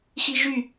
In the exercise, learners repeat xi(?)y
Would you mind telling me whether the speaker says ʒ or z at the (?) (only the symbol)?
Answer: ʒ